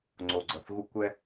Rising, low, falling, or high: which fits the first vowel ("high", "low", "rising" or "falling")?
low